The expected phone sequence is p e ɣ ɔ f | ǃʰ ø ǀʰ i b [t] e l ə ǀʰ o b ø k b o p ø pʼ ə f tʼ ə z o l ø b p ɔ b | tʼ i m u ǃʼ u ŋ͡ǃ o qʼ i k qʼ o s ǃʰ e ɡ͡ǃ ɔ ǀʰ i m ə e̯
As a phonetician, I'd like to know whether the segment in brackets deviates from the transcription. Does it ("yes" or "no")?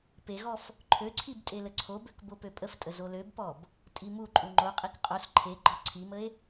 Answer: yes